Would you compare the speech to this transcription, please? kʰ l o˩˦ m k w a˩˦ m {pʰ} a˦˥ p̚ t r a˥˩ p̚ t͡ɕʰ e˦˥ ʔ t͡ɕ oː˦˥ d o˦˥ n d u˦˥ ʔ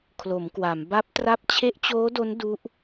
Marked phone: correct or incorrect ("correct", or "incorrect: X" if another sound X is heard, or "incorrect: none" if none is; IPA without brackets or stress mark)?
incorrect: b